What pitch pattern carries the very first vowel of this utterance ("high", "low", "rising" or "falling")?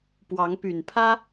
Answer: rising